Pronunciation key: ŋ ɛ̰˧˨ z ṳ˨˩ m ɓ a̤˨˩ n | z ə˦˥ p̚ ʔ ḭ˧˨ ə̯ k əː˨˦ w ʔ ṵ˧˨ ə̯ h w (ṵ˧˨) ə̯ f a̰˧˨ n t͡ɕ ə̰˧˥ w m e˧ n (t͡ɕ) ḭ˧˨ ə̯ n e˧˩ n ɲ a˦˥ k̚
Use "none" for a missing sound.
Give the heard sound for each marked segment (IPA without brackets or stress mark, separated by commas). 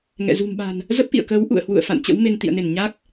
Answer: ṵ˧˨, t̪